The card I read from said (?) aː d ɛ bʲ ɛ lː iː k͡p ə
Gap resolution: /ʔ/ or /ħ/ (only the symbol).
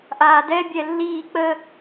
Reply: ʔ